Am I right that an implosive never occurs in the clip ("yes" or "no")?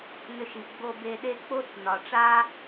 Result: no